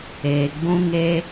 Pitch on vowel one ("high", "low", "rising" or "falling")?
low